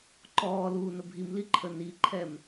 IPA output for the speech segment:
ǃ ɔː l uː n ə bʱ i m l i ǃʰ ə n i ǃʰ ɛ m

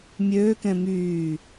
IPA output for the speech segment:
mʲ øː k ɛ̃ m yː

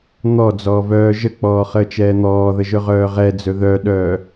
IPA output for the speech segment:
n̪ ɔ d͡z ɔː v œː ʒ ə k͡p ɔː χ əː t͡ʃ ɛː n̪ ɔː ð ə ʒ ɵ ʁ œː ʁ ɛ d͡z ɵ ð œ ɗ œː

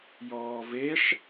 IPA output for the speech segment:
j ɔː v e ʂ

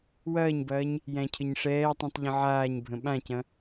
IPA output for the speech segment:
w ɐː ɲ b ɐː ɲ | j æ̃ cʰ ə ɲ ʂ ɛː tˤ ĩ tˤ ʎ ə̃ ʕ aː ɲ bʱ ə̃ ɓ ã c ɐ̃

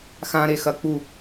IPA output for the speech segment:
x ã ɾ e x ɐ k͡p u

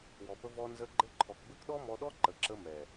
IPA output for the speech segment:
w ɔ˨ p ə˧ v ɔ˧ n z ə˧ ɡ͡ǃ ɘ˦ ǃʰ ɔ˨ k b ɘ˦ k ɗ ɔ˦ m ɔ˧ ɗ ɔ˦ ǃ ə˨ ǁ ə˧ m ɛ˨

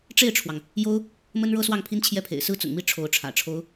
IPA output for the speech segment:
ʈ͡ʂ e˥˩ ɪ̯ ʈ͡ʂʰ w ɑ˩ ŋ | j o˥ ʊ̯ | m ə˥ n ɻ ɤ˥ s w ɑ˥˩ ŋ pʰ i˥ n t͡ɕʰ j ɛ˥˩ pʰ ḛ˨˩ ɪ̯ s ɹ̩˥˩ t͡s ʊ̰˨˩ ŋ m i˥˩ ʈ͡ʂʰ o˧˥ ʊ̯ ʈ͡ʂʰ ä̰˨˩ ʈ͡ʂʰ o˥ ʊ̯

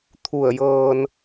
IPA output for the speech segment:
t̪ʰ u˧˩ ə̯ j ɤː˧ n

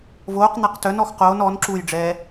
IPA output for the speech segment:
v oː q n̪ a q t œ n ɔ x q oː n ɔ n ǁ u j ɖ͡ʐ ɛː

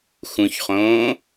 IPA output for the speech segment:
x ũ ç χ õː

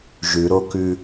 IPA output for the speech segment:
ʒ ʉ ɾ o k ʉ

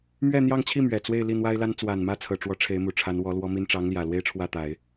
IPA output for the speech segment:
m ɥ ɛ˥˧ n̪ j ɑ˥˧ ŋ t͡ɕʰ i˥˩ m ɥ ɛ˨˩ t͡s w e˥˧ ɪ̯ l i˥˩ n̪ w a˥ ɪ̯ l a˥ n t͡s w a˨˩ n m ä˥˩ t͡sʰ ɤ˨˩ ʈ͡ʂ w ɔ˧˥ ʈ͡ʂʰ e˧˥ ɪ̯ m u˨˩ ʈ͡ʂʰ a˧˥ n w ɔ˧˥ l w ɔ˥ m i˥ n ʈ͡ʂ ɑ˧˥ ŋ l j ä˨˩ l w e˥ ɪ̯ ʈ͡ʂʰ w ä˥˩ t̪ a˨˩˦ ɪ̯

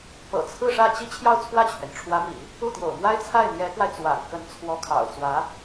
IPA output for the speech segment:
p ɤ̰˨˩ t͡sʰ ɹ̩˥˧ ʂ ä˥˩ t͡ɕ i˥ t͡ɕʰ j ɑ˥˧ ʊ̯ t͡sʰ w ä˥˩ t͡ɕʰ ɥ ɛ˩ n ʈ͡ʂʰ w ä˧˥ m ḭ˨˩˦ | u˥˩ t̪ j o̰˨˩ ʊ̯ m w a˥ ɪ̯ t͡sʰ a˥˩ ɪ̯ n̪ j ɛ˧˥ k w a˧ ɪ̯ t͡s w a̰˨˩ n k ə˧˥ n t͡sʰ w ɔ˧˥ kʰ ɑ̰˨˩ ʊ̯ t͡s w ä˧˥

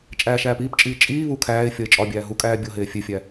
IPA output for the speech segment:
t͡ʃʼ æː ʃ æː p iː p t͡ʃʼ iː t͡ʃʼ iː β u kʰ æː ɪ̯ fʲ ɒ ɪ̯ t͡ʃʼ ɒ bʲ æː ɦ u kʼ æː bʲ o ɦ eː fʲ e fʲ æ

